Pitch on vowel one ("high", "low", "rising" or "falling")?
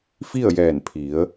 falling